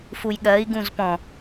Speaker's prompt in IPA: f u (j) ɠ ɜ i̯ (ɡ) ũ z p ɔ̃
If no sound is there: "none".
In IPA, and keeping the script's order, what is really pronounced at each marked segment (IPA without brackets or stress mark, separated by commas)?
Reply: j, ɡ